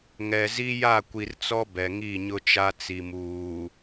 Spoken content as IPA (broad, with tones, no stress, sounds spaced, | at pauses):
ŋ ɛ˨ z i˦ j a˦˨ kʷ i˨ r t͡s ɔ˦ b ɛ˨ ŋ i˦˨ ɲ ʊ˦ t͡ʃ a˦ t͡s i˨ m uː˨